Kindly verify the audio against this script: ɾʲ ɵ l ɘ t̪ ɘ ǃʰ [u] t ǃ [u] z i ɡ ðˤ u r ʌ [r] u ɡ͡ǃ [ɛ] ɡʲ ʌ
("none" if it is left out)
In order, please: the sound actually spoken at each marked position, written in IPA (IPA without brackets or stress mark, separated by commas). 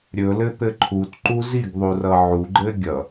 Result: u, u, ʕ, ɘ